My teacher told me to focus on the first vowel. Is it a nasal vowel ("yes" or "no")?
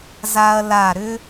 no